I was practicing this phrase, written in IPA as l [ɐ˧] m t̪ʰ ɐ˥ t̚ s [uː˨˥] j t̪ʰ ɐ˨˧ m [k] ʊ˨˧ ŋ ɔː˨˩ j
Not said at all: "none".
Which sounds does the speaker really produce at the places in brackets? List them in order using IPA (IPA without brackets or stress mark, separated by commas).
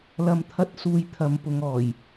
ɐ˧, uː˧, p